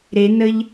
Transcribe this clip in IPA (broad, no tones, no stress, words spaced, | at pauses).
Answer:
ɾenəʎ